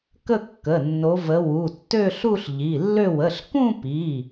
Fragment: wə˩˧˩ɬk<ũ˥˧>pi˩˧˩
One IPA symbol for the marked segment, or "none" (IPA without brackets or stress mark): ũ˥˧